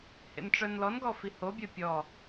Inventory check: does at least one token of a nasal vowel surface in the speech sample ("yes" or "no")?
no